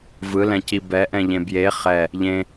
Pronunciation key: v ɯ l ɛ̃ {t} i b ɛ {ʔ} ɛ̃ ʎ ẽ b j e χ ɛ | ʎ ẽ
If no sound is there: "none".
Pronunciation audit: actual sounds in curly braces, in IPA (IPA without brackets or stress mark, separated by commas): c, ʔ